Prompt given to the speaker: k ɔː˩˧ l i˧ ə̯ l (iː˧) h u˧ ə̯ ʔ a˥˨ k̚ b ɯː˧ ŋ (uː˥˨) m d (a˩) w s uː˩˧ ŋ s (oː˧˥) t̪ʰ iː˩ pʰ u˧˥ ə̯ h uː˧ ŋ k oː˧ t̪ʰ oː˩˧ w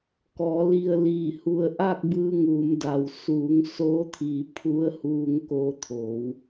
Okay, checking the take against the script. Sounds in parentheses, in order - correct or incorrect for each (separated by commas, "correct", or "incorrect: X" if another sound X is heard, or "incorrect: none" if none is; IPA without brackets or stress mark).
incorrect: iː˧˩, incorrect: uː˩˧, correct, correct